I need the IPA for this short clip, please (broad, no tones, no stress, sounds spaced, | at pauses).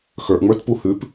x ə˞ ʔ ŋ͡m ə˞ t p u h ʉ p